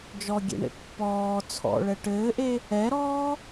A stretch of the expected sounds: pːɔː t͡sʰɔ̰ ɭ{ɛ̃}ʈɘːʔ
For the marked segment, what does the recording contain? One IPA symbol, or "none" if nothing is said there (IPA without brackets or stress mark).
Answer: ɛ